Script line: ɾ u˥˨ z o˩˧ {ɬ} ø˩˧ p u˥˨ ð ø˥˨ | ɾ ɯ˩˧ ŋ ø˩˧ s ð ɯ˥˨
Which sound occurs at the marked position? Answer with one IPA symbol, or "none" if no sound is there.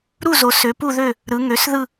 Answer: s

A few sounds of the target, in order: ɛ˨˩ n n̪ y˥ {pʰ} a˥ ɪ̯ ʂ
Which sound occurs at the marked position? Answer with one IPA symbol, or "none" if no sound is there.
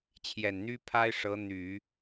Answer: pʰ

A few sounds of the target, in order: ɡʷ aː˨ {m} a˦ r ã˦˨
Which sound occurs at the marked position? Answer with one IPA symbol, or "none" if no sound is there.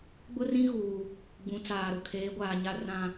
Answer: ɲ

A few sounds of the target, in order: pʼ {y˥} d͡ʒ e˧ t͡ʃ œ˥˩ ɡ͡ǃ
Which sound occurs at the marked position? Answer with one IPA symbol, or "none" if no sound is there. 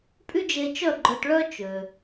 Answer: y˥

